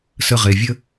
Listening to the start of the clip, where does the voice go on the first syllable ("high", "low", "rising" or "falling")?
low